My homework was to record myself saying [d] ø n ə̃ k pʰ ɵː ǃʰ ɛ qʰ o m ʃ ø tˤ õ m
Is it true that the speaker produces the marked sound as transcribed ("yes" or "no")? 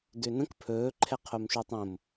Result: yes